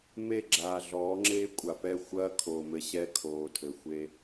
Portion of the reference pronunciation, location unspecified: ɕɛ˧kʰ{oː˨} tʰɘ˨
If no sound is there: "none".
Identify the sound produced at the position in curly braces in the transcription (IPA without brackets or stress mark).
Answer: oː˨